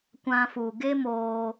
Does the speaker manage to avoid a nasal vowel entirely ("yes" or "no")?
no